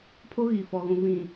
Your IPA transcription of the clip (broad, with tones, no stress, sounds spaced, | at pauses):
pʰ o˦ ɣ i˨ f ɔ˨ ɣ ũ˨ v ĩ˨